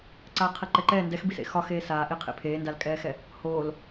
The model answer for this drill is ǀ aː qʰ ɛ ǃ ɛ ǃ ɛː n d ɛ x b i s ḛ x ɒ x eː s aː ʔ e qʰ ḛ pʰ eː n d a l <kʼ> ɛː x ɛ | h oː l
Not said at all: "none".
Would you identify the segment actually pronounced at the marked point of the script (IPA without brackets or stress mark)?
kʼ